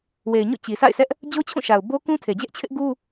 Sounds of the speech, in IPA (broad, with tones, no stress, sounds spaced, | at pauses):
w e˨ ɪ̯ ɲ o̰˦˨ t͡ɕ i˨ s a̰˦˨ ɪ̯ sʰ ɛ˦ ʔ | d͡ʑ o˦ t͡ɕʰ ũ˦˨ ʃ a˨ ʊ̯ b o˦ k ũ˦ tʰ e˨ d͡ʑ ɛ˦ ʔ t͡ɕʰ ɪ˦ ʔ ɡ u˦